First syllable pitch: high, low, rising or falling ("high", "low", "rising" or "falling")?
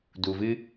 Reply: low